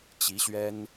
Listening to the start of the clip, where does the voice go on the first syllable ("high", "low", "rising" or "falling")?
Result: rising